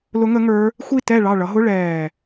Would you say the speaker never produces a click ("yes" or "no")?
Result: yes